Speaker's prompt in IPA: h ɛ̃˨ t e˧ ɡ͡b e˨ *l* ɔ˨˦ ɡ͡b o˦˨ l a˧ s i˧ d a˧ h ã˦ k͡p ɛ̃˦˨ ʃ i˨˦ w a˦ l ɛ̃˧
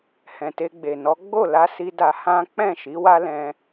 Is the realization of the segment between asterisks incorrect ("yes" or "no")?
yes